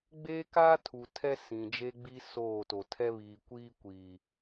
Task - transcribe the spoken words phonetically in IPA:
ɡ͡beː˦kaː˦ tʰu˨tʰɛ˦ sĩ˨d͡ʒe˦ɡ͡bi˦ soː˦˨to˨ tʰɛ˦βiː˨ kʷiː˦kʷiː˨

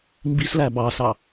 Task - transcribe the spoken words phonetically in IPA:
mbislæ bɑsɑ

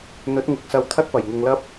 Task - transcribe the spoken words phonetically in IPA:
n̪ɵ˨˥t̚ŋɪ˨˥k̚ sɐ˧w t̪ʰɐ˥t̚pɐ˨˩j ŋʊ˨˧ŋlɐ˥p̚

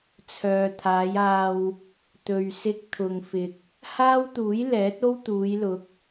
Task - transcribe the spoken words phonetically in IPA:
t͡sʰœː˨t̪ʰaː˨˧jaː˧w | t̪ɵ˨ɥsɪ˧k̚t̪ʰʊ˨ŋ fɪ˨k̚ | haː˥wt̪uː˨˥j lɛː˨˥t̚o˥w t̪uː˨˧jlʊ˨˥k̚

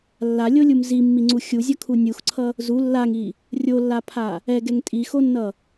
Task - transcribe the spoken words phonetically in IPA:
lːalʲolʲum zimːiŋ͡ǀu xʲuzʲʌkʰu nʲuxǀʰʌ | zu lːaŋi | rʲolːapʰa | ɛɡɛŋ tʼixonːʌ

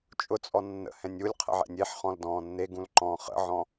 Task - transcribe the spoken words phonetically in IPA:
t͡ʃʼʊt͡sʼɔ nːə̰hɛ̃nʲ ulʲqʰə̰ʕɛ̰nʲ eħχɔ̃ldɔ̃ː nːeɡũlǃɔ̃ː χə̰ʕɔ̃

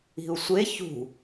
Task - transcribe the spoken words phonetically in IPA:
i̤u̯sʷe çṳ

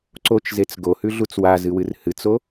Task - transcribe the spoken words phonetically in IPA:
ǀot͡ʃzet͡s ɡohʉɮut͡s wazɨwɨr hɨt͡so

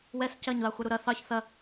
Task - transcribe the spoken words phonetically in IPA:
wɛs cɐɲðɑ xʷɐɾuɾɐ θɑç θɐ

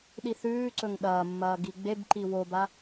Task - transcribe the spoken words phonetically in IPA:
ɗiθʉːǀɵŋ ɗɐːmːɐː ɡiɡ͡bebǃi woba

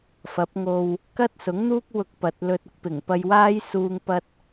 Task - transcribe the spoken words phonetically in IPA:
fɐ˨˥p̚ŋo˧w | kɐ˥t̚sʊ˨˥ŋn̪uː˥k̚ wʊ˧k̚ pɐ˨t̚lɵ˧t̚ ʊ˨˥k̚pɪ˨˩ŋ pɐ˧jwaː˥j suː˧ŋ pɐ˧t̚

